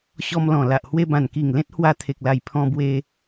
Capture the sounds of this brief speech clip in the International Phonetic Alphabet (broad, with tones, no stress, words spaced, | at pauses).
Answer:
ɕɔ˧mlɔ̃˨˩la˨ʔ hwe˧bã˨˩nki˨˩ŋ lẽ˦t̚ hwa˧t̪ʰe˨k̚la˨˩j pʰɔ̃˧bwe˧